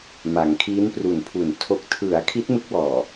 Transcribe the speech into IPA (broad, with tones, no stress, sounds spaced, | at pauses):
m a˩˦ ŋ kʰ iː˦˥ n p r u˨˩ n pʰ u˨˩ n tʰ o˨˩ k̚ tʰ ɯ˩˦ a̯ kʰ i˦˥ t̚ m ɯ˦˥ k̚ w ɔː˨˩